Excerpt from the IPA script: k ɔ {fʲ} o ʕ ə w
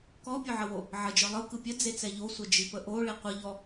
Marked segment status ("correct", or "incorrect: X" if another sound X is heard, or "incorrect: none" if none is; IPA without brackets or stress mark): incorrect: pʲ